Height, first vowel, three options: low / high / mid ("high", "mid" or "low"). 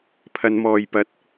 low